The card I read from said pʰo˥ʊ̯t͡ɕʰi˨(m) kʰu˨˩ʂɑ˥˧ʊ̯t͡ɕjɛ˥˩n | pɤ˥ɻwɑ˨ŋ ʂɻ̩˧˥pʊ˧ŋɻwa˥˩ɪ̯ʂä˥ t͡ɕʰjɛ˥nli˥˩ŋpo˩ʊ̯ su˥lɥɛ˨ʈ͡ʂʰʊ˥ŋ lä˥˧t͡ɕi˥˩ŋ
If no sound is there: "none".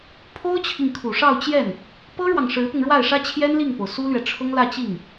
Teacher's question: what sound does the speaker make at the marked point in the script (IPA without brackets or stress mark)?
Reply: ŋ